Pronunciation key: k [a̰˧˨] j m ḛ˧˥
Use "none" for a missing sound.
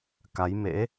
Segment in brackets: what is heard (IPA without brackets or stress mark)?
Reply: a˨˦